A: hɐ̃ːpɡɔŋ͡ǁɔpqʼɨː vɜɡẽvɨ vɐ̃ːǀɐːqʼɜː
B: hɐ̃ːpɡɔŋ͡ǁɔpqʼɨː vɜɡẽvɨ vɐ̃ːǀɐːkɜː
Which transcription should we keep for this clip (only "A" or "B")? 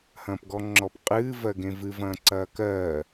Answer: B